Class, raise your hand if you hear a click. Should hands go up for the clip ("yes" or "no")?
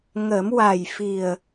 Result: no